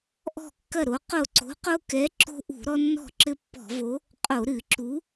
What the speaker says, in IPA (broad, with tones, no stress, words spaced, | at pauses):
ʔɔ̤˥˩kːɐ˥˩ɾo˨˥ qo˥˩ ǀo̤˨˥qo˦kɛ˨˥ ǁo̤˦ʔṳ˧˩˧ ɾɔ˦nːɔ̤˥˩ ǁɘ˦pːɔ̤˧˩˧vo˨˥ | qʼo˧˩˧ɾɨ˧˩˧ǁu˨˥